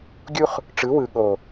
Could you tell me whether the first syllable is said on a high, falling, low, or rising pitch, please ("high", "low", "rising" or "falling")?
high